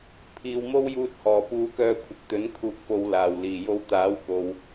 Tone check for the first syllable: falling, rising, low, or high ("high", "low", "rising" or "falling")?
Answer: low